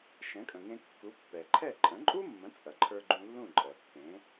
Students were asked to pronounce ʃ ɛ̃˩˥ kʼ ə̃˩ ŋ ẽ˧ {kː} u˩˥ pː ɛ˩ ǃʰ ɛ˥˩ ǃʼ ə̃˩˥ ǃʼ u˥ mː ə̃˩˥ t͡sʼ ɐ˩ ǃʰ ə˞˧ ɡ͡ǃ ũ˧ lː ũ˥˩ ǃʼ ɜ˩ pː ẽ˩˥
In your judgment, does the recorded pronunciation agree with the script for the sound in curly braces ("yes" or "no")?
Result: yes